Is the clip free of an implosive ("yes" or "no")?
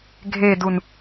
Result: yes